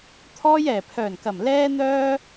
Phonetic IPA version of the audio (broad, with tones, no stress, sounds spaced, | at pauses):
t̪ʰ ɔː˧ j ɛː˨˩ pʰ œː˨˩ n k ɐ˨˩ m l ɛː˥ n̪ œː˥